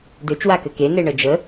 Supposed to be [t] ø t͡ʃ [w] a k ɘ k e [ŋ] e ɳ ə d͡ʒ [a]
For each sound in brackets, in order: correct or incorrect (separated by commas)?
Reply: incorrect, correct, incorrect, incorrect